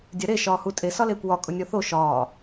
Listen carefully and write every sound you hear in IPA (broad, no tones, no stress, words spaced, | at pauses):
dʲaɾe ʃɒːhutʼe sɒleːkʷwɒ kʼʊnʲɔθo ʃɒː